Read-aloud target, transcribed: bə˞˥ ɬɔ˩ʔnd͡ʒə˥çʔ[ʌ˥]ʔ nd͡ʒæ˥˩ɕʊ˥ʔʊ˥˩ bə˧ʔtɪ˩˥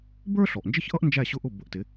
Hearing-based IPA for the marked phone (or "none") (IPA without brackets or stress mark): ʌ˥